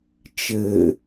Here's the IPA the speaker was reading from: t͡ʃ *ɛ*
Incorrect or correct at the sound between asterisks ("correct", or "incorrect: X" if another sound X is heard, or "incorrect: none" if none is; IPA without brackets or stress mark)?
incorrect: ɘ